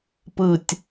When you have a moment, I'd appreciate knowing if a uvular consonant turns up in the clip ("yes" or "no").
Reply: no